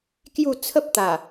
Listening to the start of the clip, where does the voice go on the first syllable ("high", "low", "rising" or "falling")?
falling